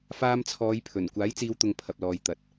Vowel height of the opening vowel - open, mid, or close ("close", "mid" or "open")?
open